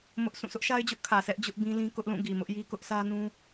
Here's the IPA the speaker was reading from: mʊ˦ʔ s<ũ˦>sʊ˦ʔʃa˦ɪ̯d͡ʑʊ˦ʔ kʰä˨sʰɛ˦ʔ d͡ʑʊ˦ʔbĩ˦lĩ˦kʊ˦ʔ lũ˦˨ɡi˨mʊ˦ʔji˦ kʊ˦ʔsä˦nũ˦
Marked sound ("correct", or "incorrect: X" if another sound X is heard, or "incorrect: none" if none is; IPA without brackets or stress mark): incorrect: ũ˦˨